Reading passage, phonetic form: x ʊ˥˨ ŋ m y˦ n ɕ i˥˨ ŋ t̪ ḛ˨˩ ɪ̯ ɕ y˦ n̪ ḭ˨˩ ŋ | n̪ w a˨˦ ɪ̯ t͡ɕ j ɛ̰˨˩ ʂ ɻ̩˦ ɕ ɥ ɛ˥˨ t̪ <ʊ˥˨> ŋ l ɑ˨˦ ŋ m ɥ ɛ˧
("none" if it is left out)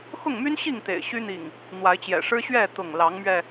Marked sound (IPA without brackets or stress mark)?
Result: ʊ˥˨